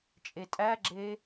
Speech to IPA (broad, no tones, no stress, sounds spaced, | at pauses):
t͡ʃʼ e tʼ æ ɡ͡ǁ e